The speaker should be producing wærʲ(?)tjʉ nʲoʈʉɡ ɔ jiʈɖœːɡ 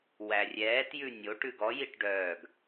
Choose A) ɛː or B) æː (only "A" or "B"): A